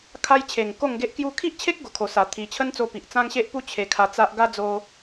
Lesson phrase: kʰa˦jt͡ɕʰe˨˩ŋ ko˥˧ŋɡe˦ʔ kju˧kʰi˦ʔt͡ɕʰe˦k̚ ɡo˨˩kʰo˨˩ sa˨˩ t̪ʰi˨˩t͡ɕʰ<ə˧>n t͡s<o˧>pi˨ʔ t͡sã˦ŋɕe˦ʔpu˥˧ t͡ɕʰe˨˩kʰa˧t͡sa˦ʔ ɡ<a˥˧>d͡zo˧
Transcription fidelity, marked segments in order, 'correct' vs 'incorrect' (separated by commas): incorrect, incorrect, incorrect